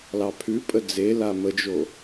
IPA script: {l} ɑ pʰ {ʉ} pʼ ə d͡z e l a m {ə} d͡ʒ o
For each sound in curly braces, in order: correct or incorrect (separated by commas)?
correct, correct, correct